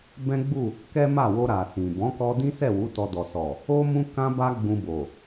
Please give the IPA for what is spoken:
b ɛ̃˦ ɡ͡b u˦˨ | k ɛ˦ m a˦˨ w o˧ ɾ a˨ s ĩ˨ b ɔ̃˨˦ k ɔ˧ d ĩ˦ s ɛ˦˨ w u˨˦ t ɔ˧ d ɔ˨ s ɔ˨ | o˦ m ũ˦ k ã˦ b a˦ ɡ͡b ũ˧ b o˨

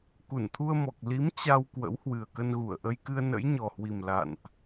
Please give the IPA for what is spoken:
k u˧˩ n t̪ʰ u˧ ə̯ m ɔ˨˩ k̚ l i˨˦ m t͡ɕ a˧ w k w ə̰˧˥ w h w ɨ˨˩ ə̯ k ə˧ n ɣ u˧˩ ə̯ ʔ ə˧ j k ɨ˧ ə̯ n ə̰˧˥ j ɲ ɔ˨˩ h w i˨˩ m l a̰˧˨ n ʔ

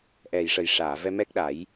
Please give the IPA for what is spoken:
ʔ ɛ˨˩ j ʂ ə˨˩ j ʂ aː˨˩˨ v ɛ˧ m ɛ˦˥ k̚ ɗ a˨˩˦ j

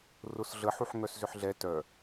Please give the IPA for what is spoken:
r ʊ s ɮ ə ħ u ħ ŋ œ s z ʏ ħ ɮ ɛ t œ

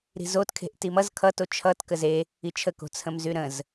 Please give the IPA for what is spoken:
ɾ i̤ z o t kʰ e̤ ʔ t i m ʌ z kʰ ʌ t o t͡ʃʰ ʌ t k ə z e | i t͡ʃʰ ə k o̤ t͡sʰ ə̃ m z y ɾ ə̃ z

